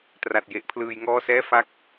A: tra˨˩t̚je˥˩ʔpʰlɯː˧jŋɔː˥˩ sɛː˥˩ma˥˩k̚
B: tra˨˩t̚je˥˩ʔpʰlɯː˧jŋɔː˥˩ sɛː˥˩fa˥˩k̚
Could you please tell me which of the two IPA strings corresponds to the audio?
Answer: B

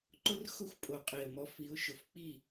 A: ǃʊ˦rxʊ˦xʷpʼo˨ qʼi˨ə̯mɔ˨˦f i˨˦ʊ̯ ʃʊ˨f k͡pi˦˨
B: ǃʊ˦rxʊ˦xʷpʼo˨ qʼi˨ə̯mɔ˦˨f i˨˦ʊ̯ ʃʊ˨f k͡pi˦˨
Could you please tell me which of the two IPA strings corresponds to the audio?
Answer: A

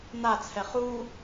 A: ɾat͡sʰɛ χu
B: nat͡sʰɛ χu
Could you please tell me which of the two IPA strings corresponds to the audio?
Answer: B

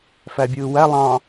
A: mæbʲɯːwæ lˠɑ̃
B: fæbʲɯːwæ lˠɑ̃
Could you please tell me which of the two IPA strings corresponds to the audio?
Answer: B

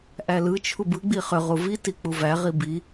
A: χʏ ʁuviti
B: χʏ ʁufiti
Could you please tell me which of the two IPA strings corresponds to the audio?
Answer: A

